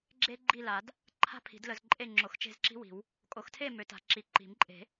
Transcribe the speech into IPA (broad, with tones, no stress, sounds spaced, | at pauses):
ɡ͡ǁ e˥ ɡ͡ǃ i˥˨ l a˨˩˦ d | ǃʰ a̤˥ pʰ i̤˨˩˦ d l ə˨˦ z ǃʼ e˥˨ ŋ͡ǁ o˨˩˦ x t͡ʃ e̤˥˨ z ǁ i̤˥ w i̤˨˩˦ w | kʼ o˨˩˦ x tʰ e˥˨ m ø˨˩˦ t a̤˨˩˦ ǁ i˨˩˦ ǃ i̤˨˩˦ m ǃʼ e̤˨˩˦